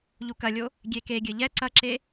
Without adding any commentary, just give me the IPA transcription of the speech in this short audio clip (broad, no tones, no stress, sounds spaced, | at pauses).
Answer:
ʎ u k ɐ lʲ o | ɡʲ e k e ɡʲ ɘ ʎ ɛ ǀ ɐ ǁ e